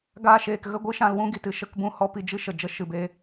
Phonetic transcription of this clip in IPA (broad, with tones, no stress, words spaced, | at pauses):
ɡaː˧ʃeː˨kɣə˦ɡʷɨ˦ ʃã˧lwũ˦ɡi˨tɨ˧ ʃə˧k bũ˦˨ hɔ˦pi˧ d͡ʒɨ˦ʃə˨ d͡ʒə˧ʃɨ˨beː˧